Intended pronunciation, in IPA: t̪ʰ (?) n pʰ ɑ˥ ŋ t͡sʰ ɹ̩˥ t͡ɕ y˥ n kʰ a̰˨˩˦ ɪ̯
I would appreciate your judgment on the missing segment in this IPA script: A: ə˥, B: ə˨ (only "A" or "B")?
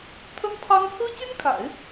A